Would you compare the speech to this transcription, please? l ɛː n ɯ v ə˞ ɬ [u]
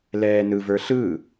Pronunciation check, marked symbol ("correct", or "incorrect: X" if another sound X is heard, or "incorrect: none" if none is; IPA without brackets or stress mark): incorrect: ɯ